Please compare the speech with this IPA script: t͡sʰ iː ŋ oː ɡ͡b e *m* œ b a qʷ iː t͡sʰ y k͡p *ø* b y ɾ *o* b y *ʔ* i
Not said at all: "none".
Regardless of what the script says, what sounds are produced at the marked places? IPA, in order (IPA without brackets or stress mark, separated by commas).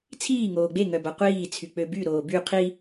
ŋ, ø, oː, qʰ